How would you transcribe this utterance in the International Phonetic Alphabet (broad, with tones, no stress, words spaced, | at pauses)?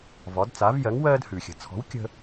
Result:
vɒ˩˥dt͡sa˩˥vjɜ˩˥ŋ wɜː˥dhʉ˩xʲə̤˩˥ t͡sʰɔ̤˩˥w kʲə̤˧